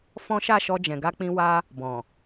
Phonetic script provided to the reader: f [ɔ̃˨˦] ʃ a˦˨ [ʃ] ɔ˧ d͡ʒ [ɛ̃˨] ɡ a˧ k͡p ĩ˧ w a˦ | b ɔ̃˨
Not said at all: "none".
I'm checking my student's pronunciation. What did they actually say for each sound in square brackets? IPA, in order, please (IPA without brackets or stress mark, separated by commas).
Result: ɔ̃˦, ʃ, ɛ̃˨